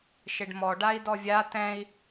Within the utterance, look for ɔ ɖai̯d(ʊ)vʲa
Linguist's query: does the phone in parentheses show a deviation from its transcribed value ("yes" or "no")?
yes